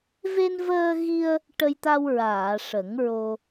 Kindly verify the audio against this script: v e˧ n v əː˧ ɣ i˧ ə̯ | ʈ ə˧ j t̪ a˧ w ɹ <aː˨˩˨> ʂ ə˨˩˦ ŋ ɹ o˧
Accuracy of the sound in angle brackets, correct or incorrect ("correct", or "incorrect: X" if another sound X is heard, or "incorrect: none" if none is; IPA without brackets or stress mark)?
correct